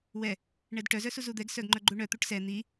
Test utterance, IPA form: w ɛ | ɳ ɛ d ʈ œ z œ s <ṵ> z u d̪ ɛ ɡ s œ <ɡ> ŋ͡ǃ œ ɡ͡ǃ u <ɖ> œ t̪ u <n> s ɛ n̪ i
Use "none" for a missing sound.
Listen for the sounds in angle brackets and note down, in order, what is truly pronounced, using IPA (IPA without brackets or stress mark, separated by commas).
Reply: u, ɡ, ɳ, ʈ